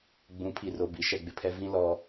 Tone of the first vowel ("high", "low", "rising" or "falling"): rising